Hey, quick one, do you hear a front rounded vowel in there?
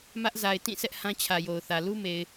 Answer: no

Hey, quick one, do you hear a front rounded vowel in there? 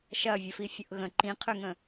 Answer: yes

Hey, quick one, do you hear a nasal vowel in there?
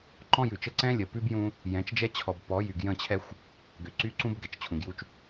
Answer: yes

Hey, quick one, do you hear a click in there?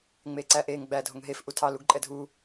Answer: yes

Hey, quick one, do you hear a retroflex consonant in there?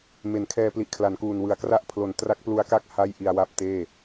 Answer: no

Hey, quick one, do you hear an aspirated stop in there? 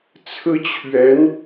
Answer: yes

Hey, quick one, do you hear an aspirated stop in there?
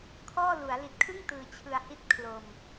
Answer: yes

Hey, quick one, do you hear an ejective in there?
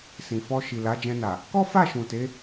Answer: no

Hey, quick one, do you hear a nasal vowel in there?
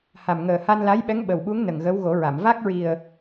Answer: no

